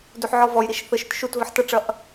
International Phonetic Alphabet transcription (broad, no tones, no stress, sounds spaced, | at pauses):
d u ħ ʕ ɔ v ɔ j ɾ i ʃ θ ə ʃ ʏ t ʃ u t v ə ħ t ɐ ʈ͡ʂ ɐ ʔ